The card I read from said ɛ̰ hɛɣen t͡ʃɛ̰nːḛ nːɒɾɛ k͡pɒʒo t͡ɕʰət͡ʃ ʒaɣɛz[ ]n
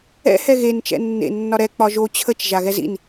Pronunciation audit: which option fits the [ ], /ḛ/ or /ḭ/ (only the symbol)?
ḭ